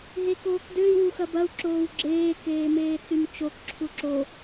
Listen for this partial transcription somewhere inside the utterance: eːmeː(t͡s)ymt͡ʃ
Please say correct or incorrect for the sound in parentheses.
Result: correct